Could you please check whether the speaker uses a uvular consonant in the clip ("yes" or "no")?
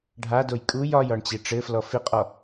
yes